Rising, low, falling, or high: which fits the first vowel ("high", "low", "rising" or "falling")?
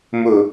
low